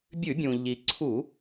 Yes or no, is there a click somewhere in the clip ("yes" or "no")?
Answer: yes